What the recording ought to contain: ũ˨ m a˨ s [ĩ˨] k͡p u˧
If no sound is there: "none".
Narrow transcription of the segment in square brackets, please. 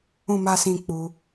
ĩ˨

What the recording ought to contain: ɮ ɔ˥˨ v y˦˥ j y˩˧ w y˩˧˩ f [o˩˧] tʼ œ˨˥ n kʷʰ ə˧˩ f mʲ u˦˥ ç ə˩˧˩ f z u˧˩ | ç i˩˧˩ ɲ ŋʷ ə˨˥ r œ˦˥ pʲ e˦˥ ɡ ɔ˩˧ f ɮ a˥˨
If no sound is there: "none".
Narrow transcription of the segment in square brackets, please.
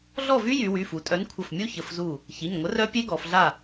u˩˧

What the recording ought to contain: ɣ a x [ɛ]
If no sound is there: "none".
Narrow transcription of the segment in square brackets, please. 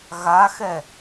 ɛ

